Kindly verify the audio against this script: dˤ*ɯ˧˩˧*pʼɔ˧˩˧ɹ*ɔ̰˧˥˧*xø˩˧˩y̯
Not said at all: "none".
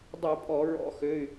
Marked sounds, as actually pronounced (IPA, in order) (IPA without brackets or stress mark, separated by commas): ɯ˧˩˧, ɔ̰˧˥˧